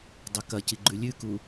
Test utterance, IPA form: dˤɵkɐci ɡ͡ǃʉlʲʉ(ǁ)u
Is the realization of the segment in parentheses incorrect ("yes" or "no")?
yes